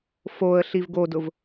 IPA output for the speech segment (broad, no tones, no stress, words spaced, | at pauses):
foə̯ ɬivɡodʊv